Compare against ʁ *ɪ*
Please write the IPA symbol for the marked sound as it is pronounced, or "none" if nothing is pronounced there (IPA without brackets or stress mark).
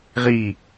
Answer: i